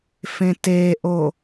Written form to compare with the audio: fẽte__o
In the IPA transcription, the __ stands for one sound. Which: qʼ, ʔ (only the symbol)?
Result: ʔ